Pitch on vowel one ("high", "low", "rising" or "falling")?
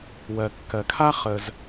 low